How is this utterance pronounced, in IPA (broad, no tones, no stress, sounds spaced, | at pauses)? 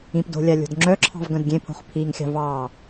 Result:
ĩ p d o̤ lʲ a lʲ o̤ d ŋ͡ǁ œ ǁʰ ɑ̤ v ɡ œ̃ d ɡʲ ẽ pʰ o̤ χ pʰ i ŋ xʲ ɑ̤ v ɑ